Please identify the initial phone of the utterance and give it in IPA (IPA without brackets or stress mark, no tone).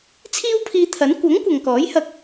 t͡sʰ